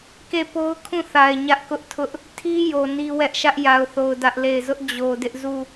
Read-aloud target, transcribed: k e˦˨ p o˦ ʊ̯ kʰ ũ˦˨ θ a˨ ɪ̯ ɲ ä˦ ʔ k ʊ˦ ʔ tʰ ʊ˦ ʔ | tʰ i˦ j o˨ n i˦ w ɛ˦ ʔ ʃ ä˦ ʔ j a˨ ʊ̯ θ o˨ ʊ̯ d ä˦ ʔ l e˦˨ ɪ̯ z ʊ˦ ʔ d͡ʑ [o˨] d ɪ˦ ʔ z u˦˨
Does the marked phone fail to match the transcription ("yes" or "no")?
no